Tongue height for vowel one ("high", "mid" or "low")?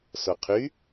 mid